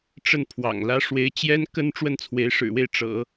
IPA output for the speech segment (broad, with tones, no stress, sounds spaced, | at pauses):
ʈ͡ʂ ə˥˩ n pʰ w ɑ̰˨˩ ŋ l ä˥ ʂ w e˧˥ ɪ̯ t͡ɕ j ɛ˥ n k ə˥ n ʈ͡ʂ w ə˥˩ n t͡sʰ w e˧˥ ɪ̯ ʂ ɻ̩˨˩ w e˥˩ ɪ̯ ʈ͡ʂ ɤ̰˨˩˦